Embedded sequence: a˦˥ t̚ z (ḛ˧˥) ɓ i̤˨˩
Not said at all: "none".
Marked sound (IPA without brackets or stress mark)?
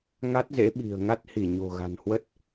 ḛ˧˥